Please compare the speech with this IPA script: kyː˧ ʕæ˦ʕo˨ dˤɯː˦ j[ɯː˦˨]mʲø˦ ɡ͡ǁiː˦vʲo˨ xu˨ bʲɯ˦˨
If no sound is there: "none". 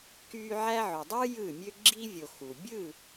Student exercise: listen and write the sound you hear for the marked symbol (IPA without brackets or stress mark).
ɯː˦˨